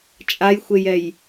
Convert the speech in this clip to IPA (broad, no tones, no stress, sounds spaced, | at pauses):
t͡ʃʼ a j xʷ e j ɛ j